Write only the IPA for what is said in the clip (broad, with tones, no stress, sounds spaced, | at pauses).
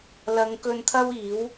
l ɐ˨˧ ŋ k ɵ˧ n t̪ʰ ɐ˥ w iː˨˥ w